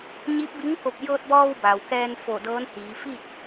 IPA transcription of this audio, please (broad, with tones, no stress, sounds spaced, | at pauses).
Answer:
ɲ i˧˥ p̚ b i˧˥ ŋ k o˧˩ p̚ j ɤː˧ t̚ b ɔː˧ w b a˩ w k ɛː˧ n f o˧˩ d ɤː˧˥ n h iː˩˧ f iː˥˨ t̚